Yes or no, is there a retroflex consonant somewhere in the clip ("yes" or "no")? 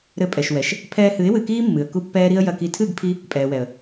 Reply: no